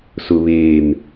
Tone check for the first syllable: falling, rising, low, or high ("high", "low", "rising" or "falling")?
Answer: low